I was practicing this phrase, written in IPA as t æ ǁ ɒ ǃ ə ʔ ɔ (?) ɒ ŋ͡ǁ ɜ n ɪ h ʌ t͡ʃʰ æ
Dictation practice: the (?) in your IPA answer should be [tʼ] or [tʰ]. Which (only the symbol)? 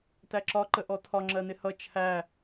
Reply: tʰ